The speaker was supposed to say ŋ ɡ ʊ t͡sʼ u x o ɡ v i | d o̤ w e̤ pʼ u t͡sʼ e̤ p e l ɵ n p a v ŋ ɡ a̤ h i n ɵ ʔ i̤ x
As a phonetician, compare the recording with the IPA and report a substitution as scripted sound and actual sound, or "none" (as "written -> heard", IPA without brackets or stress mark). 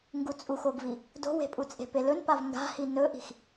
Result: ʊ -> u